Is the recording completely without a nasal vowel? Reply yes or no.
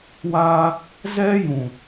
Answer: no